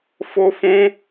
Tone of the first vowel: high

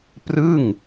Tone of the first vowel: falling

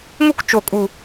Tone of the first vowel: high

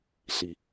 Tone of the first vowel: low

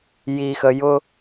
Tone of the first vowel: low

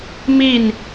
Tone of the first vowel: falling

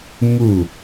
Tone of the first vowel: falling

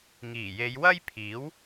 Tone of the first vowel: low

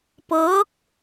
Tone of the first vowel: rising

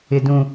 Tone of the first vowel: low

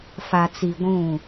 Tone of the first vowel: low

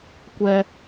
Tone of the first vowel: high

